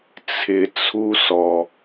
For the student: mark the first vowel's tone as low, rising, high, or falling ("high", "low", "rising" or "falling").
low